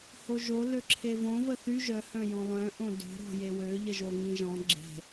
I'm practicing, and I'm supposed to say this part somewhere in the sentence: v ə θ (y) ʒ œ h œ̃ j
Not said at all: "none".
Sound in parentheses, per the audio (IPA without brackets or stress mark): y